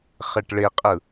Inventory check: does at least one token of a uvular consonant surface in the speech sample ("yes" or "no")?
yes